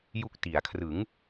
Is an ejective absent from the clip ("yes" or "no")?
yes